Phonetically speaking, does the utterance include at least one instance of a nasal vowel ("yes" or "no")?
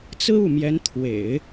no